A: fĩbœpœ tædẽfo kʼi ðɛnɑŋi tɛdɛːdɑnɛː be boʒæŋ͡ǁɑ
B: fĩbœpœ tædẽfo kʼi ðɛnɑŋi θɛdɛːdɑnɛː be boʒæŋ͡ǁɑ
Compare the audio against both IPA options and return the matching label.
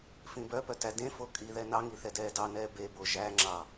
B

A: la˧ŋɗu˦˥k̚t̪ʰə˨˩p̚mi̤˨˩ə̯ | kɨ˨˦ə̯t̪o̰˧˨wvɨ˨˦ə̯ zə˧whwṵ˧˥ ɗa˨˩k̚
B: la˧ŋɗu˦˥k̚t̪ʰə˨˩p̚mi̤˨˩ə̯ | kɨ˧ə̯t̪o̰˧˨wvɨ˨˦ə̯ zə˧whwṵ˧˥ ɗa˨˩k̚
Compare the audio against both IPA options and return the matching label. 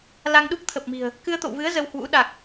B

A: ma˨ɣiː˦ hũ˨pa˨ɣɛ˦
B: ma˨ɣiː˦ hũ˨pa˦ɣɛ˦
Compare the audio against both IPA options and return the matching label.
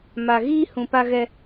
B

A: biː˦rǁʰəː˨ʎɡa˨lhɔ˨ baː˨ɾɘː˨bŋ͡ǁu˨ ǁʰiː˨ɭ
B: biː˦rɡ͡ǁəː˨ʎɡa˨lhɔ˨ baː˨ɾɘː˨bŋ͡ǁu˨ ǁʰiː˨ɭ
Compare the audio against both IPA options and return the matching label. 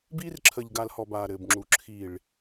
A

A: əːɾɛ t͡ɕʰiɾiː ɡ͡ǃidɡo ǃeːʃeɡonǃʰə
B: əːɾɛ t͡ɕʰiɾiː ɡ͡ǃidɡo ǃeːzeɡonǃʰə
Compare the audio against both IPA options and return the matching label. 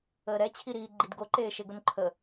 A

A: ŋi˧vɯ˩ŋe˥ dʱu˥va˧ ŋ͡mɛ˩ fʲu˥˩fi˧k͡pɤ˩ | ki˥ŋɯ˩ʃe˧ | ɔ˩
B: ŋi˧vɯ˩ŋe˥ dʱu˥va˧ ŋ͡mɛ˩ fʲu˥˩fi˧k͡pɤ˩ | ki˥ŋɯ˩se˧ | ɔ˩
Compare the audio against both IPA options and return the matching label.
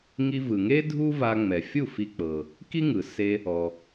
B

